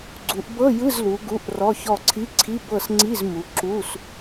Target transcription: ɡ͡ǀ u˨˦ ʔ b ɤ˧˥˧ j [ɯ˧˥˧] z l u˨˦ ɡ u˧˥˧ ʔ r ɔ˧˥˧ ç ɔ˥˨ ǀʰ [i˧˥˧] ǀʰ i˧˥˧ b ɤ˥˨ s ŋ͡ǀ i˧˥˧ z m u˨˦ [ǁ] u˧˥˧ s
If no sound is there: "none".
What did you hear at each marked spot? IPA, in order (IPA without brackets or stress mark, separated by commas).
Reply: ɯ˧˥˧, i˧˥˧, ǁ